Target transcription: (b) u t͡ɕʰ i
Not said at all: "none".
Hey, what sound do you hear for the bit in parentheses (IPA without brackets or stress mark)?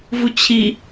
v